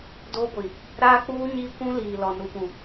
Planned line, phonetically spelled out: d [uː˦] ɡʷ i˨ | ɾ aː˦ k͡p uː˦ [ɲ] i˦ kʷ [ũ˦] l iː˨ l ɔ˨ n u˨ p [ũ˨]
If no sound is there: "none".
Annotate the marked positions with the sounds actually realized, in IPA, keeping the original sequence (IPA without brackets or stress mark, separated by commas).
oː˦, ɲ, ũ˦, ũ˨